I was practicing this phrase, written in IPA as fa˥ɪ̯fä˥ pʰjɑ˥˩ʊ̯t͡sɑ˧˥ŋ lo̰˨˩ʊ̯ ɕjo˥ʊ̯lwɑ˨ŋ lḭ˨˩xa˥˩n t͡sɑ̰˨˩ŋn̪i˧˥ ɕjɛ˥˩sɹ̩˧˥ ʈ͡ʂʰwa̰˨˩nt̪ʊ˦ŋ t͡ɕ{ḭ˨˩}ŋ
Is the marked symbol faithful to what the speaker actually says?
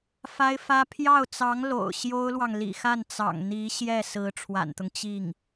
no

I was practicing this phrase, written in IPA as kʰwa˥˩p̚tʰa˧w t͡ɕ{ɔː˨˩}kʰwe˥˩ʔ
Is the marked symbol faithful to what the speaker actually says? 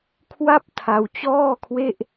no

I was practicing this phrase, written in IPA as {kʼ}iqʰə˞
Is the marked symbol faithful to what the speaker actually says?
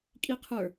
yes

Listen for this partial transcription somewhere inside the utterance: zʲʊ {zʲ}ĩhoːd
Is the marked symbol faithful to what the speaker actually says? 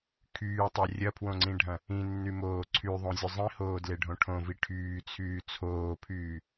no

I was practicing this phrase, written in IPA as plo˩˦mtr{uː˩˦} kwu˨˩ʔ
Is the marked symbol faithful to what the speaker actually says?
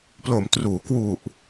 yes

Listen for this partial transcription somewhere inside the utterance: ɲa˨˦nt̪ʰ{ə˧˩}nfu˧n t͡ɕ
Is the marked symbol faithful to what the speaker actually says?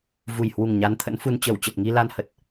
no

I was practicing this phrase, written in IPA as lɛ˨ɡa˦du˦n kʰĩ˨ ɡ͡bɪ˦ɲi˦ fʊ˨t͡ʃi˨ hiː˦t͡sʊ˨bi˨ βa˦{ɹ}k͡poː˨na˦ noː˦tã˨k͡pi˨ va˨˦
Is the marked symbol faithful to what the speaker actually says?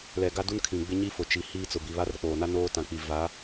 no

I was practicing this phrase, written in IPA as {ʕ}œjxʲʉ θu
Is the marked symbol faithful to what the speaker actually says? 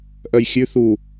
no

